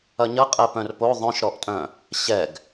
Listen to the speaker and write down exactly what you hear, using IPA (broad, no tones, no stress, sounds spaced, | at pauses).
ɐ ɲ ɐ qʼ ɛ p œ̃ r p o ðˤ œ̃ ʃ ɾ ɔ ʔ tʼ œ̃ | ɕ ɛ ɡ